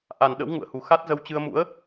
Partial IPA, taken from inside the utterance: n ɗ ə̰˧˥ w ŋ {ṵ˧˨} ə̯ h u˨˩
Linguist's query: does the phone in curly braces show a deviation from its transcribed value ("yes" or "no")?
no